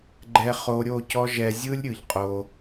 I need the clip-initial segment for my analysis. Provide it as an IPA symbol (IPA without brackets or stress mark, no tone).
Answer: ɡ͡ǃ